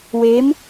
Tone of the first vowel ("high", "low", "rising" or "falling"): rising